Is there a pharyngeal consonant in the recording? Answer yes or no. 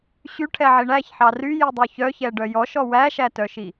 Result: yes